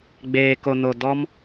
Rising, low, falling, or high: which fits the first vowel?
low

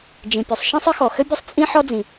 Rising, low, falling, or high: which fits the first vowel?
low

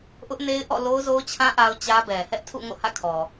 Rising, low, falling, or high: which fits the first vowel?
high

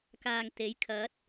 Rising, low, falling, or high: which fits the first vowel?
low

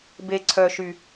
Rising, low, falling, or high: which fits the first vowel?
low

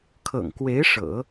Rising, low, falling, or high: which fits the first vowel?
low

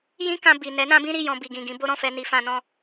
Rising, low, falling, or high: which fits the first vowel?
high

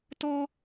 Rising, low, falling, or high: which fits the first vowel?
high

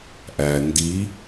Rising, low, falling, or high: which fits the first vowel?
low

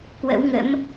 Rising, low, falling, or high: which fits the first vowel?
rising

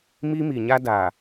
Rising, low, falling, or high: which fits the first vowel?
high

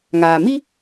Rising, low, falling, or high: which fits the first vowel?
low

